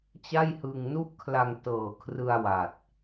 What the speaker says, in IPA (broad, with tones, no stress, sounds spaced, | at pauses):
t͡ɕ a˥˩ j h ɯ˧ ŋ n u˥˩ ʔ kʰ l a˧ ŋ t ɤː˨˩ kʰ r ɯ˧ a̯ w a˨˩ t̚